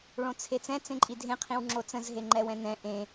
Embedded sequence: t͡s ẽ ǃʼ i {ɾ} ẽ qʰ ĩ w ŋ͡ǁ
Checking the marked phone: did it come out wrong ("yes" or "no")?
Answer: yes